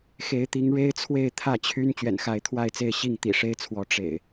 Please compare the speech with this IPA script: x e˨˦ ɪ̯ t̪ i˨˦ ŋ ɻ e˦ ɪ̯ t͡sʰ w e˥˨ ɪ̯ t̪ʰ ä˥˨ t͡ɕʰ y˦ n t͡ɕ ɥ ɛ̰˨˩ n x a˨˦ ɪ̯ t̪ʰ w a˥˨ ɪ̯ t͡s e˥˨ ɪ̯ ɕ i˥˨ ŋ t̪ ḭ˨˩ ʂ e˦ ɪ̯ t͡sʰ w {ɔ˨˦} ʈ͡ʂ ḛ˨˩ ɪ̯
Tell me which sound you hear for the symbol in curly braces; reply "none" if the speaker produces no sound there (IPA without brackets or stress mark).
ɔ˨˦